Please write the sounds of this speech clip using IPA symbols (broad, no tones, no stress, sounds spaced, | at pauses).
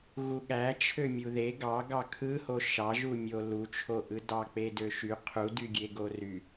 ɣ u ɠ æ t͡ʃʰ ø mʲ u ð e ɡ ɑ ɡ ɑ kʰ ɯ h o ʃ ɑ ʒ u mʲ o l u t͡ʃʰ o ʔ ɯ d ɑ k͡p e d ø ʃ y qʰ u d y ɡʲ e ɡ o r y